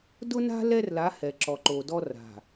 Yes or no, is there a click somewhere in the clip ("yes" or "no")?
yes